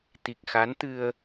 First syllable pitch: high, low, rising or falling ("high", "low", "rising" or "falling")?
low